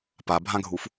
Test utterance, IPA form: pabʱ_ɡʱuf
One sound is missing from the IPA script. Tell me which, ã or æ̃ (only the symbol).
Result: ã